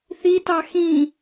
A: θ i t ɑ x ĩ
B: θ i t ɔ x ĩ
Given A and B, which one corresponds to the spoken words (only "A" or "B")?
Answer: A